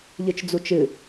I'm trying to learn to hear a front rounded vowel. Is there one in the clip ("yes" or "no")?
no